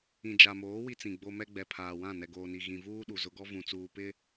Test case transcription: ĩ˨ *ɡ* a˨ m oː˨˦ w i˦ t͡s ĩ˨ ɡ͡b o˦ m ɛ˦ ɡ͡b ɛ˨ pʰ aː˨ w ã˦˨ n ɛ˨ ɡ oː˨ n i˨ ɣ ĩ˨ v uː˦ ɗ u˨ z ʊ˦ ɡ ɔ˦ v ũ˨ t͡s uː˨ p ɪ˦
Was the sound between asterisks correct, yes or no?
no